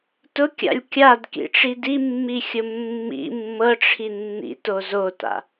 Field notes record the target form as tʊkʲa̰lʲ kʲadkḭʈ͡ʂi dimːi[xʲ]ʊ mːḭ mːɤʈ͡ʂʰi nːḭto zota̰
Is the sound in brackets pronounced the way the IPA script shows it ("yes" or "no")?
yes